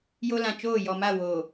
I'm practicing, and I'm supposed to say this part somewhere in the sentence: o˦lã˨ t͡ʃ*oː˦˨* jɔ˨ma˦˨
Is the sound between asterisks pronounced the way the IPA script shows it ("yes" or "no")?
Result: yes